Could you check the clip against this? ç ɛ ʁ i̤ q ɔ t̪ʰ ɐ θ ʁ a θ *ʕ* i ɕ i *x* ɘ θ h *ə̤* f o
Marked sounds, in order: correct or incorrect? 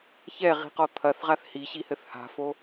incorrect: h, incorrect: h, incorrect: a̤

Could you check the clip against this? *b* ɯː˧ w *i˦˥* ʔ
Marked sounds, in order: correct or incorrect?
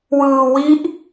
incorrect: w, correct

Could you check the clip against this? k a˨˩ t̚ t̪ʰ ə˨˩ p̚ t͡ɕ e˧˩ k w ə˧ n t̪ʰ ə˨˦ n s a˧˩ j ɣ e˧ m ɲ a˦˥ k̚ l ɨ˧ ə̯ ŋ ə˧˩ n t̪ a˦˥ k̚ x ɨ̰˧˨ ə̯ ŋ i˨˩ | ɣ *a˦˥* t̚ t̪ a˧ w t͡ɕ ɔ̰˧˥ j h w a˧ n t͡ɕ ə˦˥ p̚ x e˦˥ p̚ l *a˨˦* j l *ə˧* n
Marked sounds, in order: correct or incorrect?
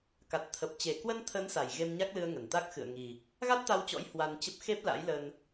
correct, incorrect: a̰˧˥, correct

